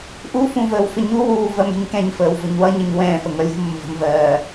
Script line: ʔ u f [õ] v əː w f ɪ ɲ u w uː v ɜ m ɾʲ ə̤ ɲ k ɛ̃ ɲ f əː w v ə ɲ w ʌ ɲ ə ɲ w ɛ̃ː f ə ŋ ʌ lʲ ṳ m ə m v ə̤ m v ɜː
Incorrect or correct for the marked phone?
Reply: incorrect: ũ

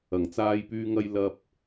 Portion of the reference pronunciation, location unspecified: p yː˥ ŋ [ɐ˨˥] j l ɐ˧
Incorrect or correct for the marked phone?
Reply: incorrect: ɐ˥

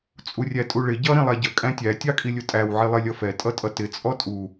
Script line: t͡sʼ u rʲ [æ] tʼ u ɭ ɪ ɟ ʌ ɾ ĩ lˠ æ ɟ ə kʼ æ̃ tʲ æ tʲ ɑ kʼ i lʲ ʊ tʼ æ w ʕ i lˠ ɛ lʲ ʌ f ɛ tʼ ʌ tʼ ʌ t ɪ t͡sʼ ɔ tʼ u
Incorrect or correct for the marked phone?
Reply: correct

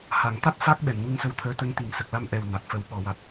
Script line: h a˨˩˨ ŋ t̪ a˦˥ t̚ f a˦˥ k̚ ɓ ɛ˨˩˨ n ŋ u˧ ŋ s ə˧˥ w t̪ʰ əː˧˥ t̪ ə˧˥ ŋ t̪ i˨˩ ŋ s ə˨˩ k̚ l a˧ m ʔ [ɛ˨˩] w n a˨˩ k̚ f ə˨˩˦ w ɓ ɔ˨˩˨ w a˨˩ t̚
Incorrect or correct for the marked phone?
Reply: correct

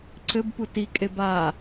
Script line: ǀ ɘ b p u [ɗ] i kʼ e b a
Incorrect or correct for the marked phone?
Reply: incorrect: t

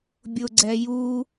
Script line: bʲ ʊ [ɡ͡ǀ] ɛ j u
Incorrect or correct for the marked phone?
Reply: correct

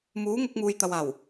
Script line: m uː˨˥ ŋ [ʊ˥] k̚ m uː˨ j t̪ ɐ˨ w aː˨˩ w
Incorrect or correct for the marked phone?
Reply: incorrect: ʊ˧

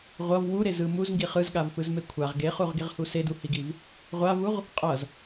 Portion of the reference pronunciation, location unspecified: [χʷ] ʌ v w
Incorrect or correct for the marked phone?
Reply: incorrect: ʁʷ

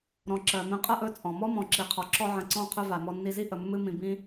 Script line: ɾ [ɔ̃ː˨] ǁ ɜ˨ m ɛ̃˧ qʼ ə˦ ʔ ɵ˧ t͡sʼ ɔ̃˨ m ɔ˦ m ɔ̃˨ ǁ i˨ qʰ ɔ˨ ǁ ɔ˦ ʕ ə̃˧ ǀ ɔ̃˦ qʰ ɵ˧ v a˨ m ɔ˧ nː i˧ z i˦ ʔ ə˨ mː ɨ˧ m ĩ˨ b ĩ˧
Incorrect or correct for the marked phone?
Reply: incorrect: ɔ̃˨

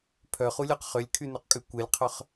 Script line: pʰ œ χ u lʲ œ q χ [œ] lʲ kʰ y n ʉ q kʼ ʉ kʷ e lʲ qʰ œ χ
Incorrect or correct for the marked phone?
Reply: incorrect: ø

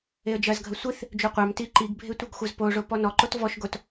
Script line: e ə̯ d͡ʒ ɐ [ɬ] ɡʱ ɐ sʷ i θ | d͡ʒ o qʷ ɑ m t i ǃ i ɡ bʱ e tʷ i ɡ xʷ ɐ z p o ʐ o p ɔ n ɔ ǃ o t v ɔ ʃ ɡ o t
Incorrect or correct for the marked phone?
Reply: incorrect: z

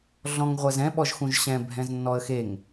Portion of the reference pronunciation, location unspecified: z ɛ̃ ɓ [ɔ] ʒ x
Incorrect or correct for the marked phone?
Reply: correct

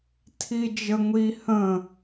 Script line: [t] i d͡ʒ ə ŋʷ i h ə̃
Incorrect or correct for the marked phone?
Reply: incorrect: tʰ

